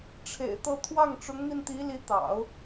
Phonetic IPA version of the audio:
ʈ͡ʂʰḛ˨˩ɪ̯t̪ɤ˥˧ t̪ʰwɑ˥˩ŋʈ͡ʂʊ˧˥ŋn̪i˧nt̪i˧˥ li˧˥t̪ɑ̰˨˩˦ʊ̯

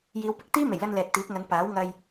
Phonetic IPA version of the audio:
jiː˨˧w pɪ˧k̚ t̪iː˥me˨˩jlɐ˧n lɛː˨t̚t̪iː˨˥k̚ŋɐ˨˧n paː˨˥wŋɐ˧j

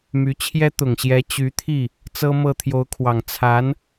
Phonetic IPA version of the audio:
my˧˥t͡ɕʰjɛ˥ t̪ʊ˨˩ŋɕjɛ˧˥ t͡ɕy˧˥t̪ʰi˥˩ | t͡sɤ˥mɤ˥˩ t̪ʰjo˧˥ʊ̯kʰwɑ˨˩ŋ t͡sʰa˧˥n

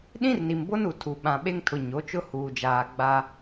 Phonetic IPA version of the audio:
ɗĩ˦rni˨mbo˦nu˨ tʰu˨ ɓã˨ɓe˦ŋtʰʊ˨ ɲo˨˦t͡ʃʊ˦ huː˨d͡ʒaː˨ ɡ͡ba˦

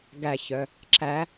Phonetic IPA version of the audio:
ɡæçœ | ǁæ

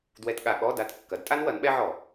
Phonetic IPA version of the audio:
dwɛ˧˥˧tɠa˧˩˧ ɠɔ˧˥˧ da˧˥˧t kːɐ˩˥dtʼa˥n wɐ˩˥nɓɛ˥ ʕɔ˧˩˧

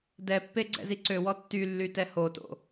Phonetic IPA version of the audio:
dɛpːe ɡ͡ǀɛ̰ziǀøwɔ tːylːy tɛhoto̰

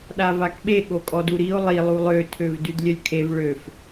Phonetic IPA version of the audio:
ɗavakɓe ɠokʼɔduɾio̯ lˠi lˠulˠø tʰøvdydlʲœlʲkʰev ɭøf

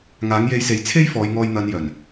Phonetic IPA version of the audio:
ŋaː˨˥ŋje˧jse˨˥j t͡sʰe˥j fɔː˨˧jŋɔː˧jn̪ɐ˨˧njœː˨˩n

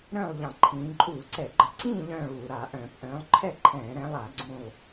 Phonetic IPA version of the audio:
ɾœ̃ː˥˨lˠʎɑ̃˧˩˧ ǃʰĩː˨˦ ǃʼuː˧˩˧ǀɛ˧˩˧ɡ͡ǃə˧˩˧ǀĩː˥˨ ʎœ̃ː˥˨ɭuː˧˩˧ ɾa˧˩˧ ʔœ̃ː˧˩˧pʔœ̃ː˨˦lˠ ǃʰɛ˥˨ ǃʰɛ̃ː˧˩˧ɾɛ̃˨˦lˠa˧˩˧ ɡ͡ǀũ˥˨lˠ

